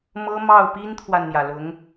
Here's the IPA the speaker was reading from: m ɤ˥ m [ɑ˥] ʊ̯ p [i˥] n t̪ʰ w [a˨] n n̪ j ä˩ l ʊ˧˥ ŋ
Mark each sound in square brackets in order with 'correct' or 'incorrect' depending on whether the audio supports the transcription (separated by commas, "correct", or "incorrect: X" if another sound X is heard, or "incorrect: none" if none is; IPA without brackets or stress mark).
incorrect: ɑ˥˩, correct, correct